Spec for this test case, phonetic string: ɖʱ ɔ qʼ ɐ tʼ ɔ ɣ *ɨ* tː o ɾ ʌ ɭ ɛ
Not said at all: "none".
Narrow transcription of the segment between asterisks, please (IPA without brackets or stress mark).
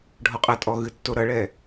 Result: ɨ